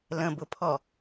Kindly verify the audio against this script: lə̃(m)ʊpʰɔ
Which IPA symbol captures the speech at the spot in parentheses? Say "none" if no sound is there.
b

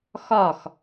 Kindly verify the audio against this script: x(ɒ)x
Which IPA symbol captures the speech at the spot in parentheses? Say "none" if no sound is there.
ɒ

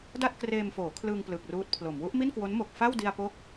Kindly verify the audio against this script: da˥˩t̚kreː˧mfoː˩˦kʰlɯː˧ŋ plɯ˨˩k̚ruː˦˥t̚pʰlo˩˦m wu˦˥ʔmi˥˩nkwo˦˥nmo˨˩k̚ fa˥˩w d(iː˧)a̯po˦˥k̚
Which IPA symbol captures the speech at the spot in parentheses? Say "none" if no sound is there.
i˧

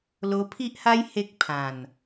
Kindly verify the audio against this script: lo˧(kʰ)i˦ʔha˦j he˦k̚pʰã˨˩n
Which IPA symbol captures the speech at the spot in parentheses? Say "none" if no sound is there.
pʰ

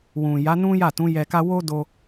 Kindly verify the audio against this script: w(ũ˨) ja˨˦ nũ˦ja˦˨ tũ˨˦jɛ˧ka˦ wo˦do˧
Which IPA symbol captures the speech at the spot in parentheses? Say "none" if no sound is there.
ũ˨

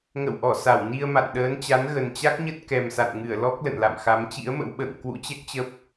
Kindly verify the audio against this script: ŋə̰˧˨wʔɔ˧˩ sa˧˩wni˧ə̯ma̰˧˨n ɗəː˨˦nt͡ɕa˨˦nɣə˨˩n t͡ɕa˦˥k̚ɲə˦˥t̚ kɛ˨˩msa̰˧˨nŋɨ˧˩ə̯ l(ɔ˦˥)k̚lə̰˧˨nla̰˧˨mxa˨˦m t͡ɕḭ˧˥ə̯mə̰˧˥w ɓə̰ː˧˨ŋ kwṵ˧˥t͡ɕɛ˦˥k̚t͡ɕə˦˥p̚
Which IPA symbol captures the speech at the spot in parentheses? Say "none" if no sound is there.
ɔ˦˥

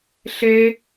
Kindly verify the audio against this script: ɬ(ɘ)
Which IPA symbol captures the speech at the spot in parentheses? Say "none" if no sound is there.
e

